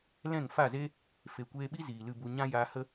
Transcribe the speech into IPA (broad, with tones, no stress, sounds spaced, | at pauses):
l ɛ̃˦˨ ŋ f a˦˨ z e˦ | f e˨ kʷ eː˧ ɓ i˦ z iː˨ l ɨ˧ b u˧ ɲ ã˦ j aː˧ h ə˦